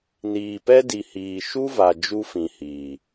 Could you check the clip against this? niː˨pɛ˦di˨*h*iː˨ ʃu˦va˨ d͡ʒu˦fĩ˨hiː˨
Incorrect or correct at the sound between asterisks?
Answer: correct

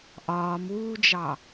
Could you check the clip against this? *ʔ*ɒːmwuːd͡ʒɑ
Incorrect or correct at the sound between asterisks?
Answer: correct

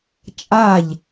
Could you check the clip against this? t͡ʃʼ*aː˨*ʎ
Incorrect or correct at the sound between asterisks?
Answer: incorrect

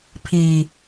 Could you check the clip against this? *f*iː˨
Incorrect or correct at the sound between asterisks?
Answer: incorrect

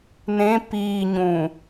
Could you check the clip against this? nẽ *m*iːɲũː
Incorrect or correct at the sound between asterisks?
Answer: incorrect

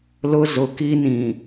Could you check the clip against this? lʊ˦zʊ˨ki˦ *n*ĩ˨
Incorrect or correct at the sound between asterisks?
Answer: correct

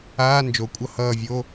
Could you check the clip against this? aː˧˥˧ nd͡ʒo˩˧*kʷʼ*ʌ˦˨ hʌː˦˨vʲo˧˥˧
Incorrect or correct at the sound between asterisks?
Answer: correct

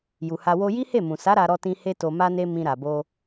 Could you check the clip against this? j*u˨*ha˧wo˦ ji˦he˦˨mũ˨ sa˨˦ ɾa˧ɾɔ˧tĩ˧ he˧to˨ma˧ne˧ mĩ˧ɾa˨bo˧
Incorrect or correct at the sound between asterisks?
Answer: correct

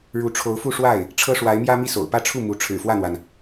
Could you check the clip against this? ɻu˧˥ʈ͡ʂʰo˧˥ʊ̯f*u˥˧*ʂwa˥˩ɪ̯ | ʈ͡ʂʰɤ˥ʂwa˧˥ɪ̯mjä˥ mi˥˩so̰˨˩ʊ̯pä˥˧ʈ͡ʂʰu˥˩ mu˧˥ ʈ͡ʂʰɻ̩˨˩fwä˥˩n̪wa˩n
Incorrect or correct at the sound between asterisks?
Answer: correct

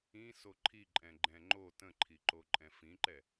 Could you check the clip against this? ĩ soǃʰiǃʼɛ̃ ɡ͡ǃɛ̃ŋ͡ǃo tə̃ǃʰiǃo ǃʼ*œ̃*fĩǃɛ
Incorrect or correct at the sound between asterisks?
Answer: incorrect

